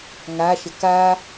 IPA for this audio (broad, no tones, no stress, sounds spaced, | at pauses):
ŋ a ʃ ə k a